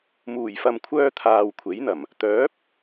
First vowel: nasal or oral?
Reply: oral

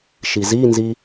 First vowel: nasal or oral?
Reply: oral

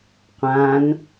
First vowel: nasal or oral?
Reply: nasal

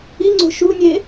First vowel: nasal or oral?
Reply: oral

